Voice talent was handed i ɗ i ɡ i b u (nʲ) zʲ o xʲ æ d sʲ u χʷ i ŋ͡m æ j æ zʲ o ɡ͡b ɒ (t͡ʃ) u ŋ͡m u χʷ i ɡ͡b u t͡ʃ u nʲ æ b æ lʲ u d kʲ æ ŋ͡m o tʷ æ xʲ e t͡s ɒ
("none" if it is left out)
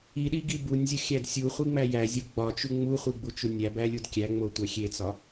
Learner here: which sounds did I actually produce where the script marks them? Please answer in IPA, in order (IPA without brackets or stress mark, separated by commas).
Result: nʲ, t͡ʃ